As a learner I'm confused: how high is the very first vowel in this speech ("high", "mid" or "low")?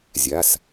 low